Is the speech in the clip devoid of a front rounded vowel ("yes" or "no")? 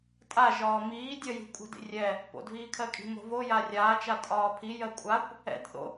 yes